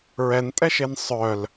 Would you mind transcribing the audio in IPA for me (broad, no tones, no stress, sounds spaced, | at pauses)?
ɹ ɛ n tʼ ɛ ʃ e n sˤ œ l